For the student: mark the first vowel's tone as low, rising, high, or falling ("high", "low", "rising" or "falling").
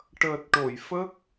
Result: low